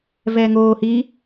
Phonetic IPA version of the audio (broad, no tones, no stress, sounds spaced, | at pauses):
v ɛː ŋ oː h i